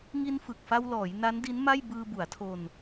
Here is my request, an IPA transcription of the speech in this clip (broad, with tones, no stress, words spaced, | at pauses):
ŋi˧nfɯ˨˩k̚fa˧wlɔː˩˦j na˦˥ndi˦˥nma˥˩j bɯː˧bu˩˦a̯tʰo˧n